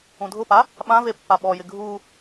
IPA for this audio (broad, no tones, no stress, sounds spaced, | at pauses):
ũ dʱ ʊ p a | ɓ ã v e pː a ɓ ɔ j ɪ ɡʱ u